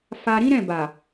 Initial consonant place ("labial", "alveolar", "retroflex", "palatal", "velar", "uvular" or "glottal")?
labial